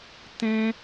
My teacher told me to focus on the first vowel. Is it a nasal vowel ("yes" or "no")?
yes